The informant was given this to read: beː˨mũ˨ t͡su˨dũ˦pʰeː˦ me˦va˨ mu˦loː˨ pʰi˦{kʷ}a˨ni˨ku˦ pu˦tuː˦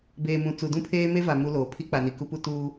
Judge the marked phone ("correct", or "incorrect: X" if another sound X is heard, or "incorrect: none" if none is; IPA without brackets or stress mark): incorrect: k͡p